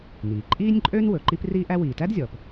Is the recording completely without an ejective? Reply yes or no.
no